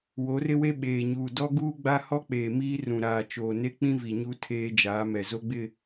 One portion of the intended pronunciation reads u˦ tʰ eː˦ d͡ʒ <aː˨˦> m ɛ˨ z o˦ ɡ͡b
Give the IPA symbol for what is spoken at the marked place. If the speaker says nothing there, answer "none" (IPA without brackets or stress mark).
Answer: aː˨˦